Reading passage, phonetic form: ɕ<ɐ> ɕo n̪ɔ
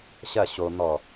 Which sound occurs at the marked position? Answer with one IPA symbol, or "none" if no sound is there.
ɐ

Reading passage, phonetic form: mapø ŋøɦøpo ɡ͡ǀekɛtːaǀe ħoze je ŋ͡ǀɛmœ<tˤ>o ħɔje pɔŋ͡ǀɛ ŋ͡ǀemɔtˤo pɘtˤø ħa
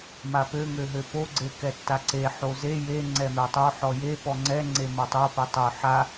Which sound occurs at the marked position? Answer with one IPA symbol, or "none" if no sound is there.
tˤ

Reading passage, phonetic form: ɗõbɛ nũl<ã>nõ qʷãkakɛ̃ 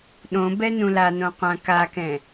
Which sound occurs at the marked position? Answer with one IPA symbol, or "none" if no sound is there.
a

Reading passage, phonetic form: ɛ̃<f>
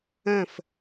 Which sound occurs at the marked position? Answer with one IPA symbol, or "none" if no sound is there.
f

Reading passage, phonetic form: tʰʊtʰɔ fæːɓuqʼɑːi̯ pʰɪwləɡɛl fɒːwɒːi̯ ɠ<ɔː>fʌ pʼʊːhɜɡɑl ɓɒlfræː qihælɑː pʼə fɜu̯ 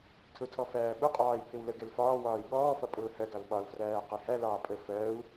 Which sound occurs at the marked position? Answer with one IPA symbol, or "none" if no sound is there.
ɔː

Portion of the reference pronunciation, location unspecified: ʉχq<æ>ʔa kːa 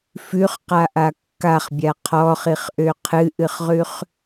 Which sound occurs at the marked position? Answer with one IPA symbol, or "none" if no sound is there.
a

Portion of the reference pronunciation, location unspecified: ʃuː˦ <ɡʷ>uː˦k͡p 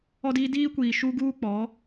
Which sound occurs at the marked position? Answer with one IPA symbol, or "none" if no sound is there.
ɡ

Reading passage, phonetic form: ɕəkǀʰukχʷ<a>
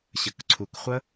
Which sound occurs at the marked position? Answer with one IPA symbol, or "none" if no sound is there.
ə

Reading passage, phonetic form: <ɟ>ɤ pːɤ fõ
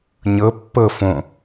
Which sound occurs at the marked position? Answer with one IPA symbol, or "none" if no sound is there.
ɲ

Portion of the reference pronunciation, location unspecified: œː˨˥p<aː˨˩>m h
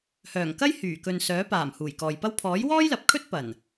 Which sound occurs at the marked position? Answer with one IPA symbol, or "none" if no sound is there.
aː˨˩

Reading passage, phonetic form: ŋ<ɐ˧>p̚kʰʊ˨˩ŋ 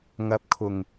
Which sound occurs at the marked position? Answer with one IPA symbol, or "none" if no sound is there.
ɐ˧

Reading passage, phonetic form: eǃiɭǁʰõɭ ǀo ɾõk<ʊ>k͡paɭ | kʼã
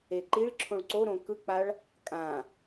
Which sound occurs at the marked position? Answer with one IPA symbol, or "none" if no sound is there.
ɯ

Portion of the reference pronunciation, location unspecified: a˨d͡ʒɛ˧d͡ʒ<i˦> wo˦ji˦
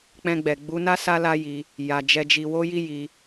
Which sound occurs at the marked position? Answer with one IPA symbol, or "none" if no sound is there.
i˧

